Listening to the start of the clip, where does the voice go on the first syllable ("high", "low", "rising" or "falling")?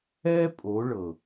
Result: high